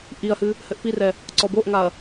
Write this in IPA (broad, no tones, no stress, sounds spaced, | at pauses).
ʔ i ɐ̯ h ɨ | h ɘ ʔ p i r ɛ | ǀ ɔ b o ʔ ŋ a ɐ̯